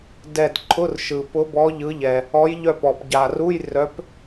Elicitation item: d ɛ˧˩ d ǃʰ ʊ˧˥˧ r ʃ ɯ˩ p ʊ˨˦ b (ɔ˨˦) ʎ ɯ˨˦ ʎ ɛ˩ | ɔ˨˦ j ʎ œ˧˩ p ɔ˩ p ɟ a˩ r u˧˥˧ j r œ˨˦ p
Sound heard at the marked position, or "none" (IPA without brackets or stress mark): ɔ˨˦